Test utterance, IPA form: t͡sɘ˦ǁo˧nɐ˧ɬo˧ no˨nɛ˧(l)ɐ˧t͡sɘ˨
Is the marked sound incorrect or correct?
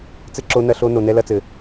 correct